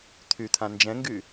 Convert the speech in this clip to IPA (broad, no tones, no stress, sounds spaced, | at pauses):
t̪ʰ y t̪ʰ ã n d͡ʒ ɛ̃ ŋ ɡ y